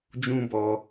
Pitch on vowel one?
high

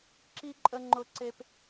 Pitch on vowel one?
high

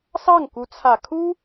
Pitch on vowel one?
falling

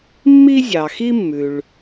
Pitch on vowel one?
high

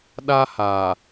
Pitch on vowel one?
high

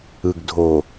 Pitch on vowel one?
low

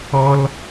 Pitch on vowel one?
high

